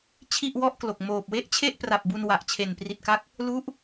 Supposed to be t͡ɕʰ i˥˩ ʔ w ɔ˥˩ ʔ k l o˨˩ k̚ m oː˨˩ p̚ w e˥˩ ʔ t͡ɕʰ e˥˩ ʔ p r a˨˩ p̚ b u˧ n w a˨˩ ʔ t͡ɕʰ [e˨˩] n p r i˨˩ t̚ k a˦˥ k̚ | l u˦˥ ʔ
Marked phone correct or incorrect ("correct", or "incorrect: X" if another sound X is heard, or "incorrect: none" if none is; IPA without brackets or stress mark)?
correct